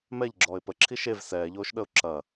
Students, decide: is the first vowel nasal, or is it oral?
oral